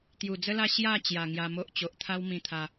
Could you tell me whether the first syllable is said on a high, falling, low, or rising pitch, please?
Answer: low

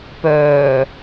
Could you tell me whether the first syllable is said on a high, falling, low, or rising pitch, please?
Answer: low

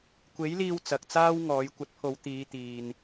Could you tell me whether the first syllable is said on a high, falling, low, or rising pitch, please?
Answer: rising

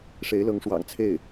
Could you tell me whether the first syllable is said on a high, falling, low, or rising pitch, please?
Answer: rising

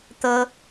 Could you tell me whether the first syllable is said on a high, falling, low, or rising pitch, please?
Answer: high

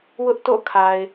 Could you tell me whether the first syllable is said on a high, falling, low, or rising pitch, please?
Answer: high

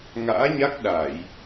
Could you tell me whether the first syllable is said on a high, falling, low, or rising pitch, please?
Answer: rising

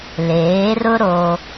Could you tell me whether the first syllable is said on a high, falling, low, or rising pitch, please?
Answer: rising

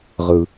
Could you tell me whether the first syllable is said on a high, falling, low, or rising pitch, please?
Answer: low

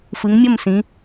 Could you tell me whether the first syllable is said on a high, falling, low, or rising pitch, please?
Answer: rising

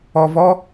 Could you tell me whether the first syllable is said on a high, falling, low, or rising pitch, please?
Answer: low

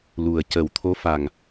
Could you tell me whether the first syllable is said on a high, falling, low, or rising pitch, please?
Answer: low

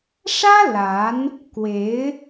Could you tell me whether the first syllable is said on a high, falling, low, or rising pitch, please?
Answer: high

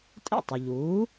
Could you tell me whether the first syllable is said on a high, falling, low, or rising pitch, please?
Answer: falling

